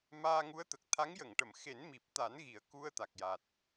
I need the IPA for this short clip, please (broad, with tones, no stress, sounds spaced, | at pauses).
m aː˧ ŋ u˧˥ ə̯ t̪ ə˨˩ k̚ t̪ʰ a˧˥ ŋ j ə˨˩˨ ŋ ʈ ə˨˩˨ m x e˨˩˦ n m i˨˩ p̚ t̪ a˨˩˦ n ɣ i˨˩˦ ə̯ k u˧ ə̯ t̪ a˨˩ k̚ j a˨˩ t̚